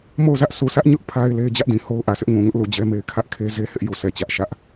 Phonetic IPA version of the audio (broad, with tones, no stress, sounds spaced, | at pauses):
m o˦˨ ʊ̯ z ä˦ ʔ s u˨ sʰ ä˦ ʔ ɲ ʊ˦ ʔ pʰ a˦ ɪ̯ l e˦ ɪ̯ d͡ʑ ä˦ ʔ d ĩ˨ h o˦ ʊ̯ ʔ ä˨ s ɪ˦ ʔ ŋ ũ˨ ŋ ʊ˦ ʔ l u˨ d͡ʑ ɛ˦ m e˦ ɪ̯ kʰ ä˦ ʔ kʰ e˦ z e˦ h ɪ˦ ʔ j u˨ sʰ ɛ˨ t͡ɕ ä˦ ʔ ʃ ä˦ ʔ